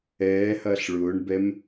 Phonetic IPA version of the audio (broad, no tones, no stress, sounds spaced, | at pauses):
ɛː h ɐː ɬ ɭ ʊː ɳ b ɛ m